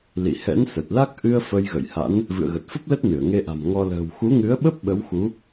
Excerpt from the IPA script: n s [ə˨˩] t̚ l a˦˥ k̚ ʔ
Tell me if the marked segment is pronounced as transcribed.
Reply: yes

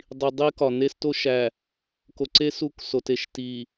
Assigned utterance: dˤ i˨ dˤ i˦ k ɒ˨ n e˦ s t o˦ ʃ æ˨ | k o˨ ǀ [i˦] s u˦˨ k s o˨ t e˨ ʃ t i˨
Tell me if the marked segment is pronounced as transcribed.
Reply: no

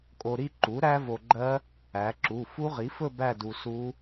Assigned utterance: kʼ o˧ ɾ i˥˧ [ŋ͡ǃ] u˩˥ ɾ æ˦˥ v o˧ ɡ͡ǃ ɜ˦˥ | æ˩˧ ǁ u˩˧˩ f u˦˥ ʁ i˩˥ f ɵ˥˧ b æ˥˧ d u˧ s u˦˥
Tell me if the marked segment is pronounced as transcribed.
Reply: no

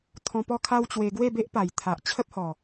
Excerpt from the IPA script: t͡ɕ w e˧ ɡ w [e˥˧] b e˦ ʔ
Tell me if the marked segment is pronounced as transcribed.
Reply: yes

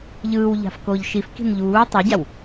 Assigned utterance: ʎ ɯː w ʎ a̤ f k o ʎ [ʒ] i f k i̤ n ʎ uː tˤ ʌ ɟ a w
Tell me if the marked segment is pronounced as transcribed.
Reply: no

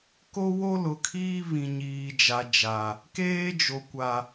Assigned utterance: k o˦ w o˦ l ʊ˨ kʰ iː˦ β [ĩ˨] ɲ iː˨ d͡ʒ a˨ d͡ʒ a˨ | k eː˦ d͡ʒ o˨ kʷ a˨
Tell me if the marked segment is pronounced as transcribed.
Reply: yes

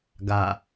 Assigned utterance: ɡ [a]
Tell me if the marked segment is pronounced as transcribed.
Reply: yes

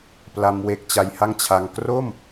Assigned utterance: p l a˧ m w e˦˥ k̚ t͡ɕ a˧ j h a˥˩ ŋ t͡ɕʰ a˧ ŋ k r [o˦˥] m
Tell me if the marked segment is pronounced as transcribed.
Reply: no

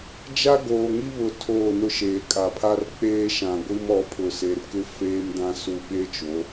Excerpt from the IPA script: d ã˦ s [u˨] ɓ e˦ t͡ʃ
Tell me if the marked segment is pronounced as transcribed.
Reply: yes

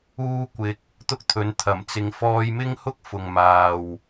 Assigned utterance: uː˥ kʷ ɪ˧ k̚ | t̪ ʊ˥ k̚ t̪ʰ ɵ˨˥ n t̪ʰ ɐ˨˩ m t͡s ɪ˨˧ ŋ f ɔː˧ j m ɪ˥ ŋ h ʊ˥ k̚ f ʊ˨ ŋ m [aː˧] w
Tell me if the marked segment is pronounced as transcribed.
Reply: no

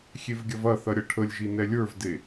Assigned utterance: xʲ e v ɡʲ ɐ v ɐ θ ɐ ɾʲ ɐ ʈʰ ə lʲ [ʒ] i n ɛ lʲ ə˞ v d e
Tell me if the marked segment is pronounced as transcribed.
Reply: yes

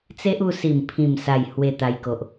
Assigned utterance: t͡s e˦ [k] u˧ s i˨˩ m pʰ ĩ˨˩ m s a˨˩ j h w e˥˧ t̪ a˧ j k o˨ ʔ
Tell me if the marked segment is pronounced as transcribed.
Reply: no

